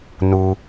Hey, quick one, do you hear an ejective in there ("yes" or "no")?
no